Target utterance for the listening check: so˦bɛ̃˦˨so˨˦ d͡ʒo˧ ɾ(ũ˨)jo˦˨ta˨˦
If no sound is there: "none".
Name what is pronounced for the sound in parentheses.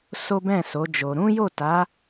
ũ˦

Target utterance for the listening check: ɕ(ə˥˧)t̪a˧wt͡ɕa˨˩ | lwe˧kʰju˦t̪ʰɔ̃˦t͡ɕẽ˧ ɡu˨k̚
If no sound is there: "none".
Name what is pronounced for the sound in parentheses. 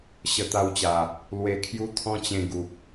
ə˧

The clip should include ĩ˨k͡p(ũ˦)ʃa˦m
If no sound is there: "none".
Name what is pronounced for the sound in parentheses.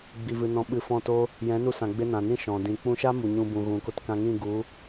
ũ˧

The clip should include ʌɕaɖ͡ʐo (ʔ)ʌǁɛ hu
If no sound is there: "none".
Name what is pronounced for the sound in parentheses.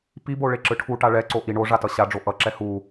ʔ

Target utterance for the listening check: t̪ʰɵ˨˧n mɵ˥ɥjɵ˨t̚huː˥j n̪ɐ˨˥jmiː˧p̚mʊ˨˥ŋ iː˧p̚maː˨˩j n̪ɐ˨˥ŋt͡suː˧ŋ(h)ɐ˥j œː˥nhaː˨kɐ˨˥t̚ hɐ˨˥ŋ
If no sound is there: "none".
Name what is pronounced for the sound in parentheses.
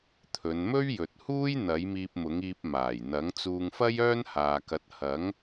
f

